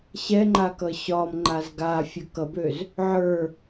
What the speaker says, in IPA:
ɕɛŋ͡ǃa kʌɕɒmŋ͡ǃaz ɡafʲʌ kʌbøz | ʕə˞

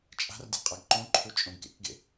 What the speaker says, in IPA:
t͡ʃʼa̤rdʲa̤ qʼaɡǃõǃʰu t͡ʃʼõɡkḛkɡḛ

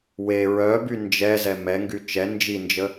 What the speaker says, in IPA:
we ɹœby nd͡ʒɛzɛ mɛŋɡy t͡ʃɛ nd͡ʒind͡ʒə

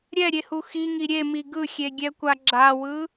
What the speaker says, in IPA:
ɾʲɛɾʲehu xiŋi ɾʲemi ɡɯxʲeɡʲɛkʷa ɡ͡ǁawɯ

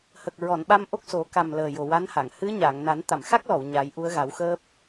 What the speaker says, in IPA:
hə˨˩k̚ɹɔ˨˩˨nɓa˧m ʔo˦˥k̚so˨˩˦ ka˨˩m ləː˨˩jo˨˩wa˧˥nha˨˩˨ŋ hɨ˧˥ɲa˨˩˨ŋna˨˩˦n t̪a˨˩˨mxa˦˥k̚lɔ˨˩˨w ɲa˨˩˦jʔu˧˥ə̯ɣa˨˩˦wxəː˦˥p̚

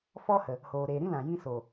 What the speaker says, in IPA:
fɔ˦hə˨ | hoː˨ɾeː˨ ɾĩ˦lã˨ jĩ˧so˨

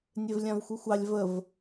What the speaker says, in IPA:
nʲevlʲãvxʷɨxʷɑlʲ vəv

